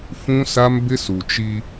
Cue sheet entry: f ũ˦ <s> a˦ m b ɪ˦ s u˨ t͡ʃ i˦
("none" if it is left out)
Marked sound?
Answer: s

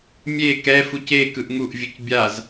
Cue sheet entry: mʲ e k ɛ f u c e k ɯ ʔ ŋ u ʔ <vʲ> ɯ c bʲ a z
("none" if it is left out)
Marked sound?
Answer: vʲ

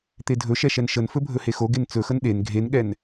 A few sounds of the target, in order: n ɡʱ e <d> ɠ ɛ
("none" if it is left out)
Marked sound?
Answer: n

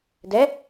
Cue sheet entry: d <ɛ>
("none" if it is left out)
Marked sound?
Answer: ɛ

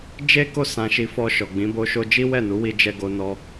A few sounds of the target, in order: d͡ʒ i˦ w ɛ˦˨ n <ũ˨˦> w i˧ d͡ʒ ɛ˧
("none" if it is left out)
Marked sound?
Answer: u˨˦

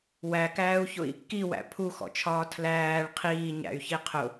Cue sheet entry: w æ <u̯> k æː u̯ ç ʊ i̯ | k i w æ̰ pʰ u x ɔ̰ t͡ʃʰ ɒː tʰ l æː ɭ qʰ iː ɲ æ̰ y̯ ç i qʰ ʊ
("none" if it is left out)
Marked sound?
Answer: none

